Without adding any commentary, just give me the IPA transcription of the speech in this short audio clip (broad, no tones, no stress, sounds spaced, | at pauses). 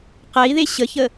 q ɛ i̯ ð e ɕ ə ç ə